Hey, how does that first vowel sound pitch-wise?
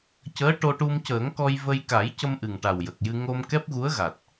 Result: rising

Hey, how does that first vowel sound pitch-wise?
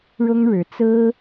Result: high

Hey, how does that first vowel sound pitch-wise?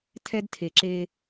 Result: high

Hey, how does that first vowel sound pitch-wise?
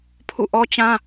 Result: falling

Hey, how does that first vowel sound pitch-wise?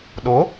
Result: rising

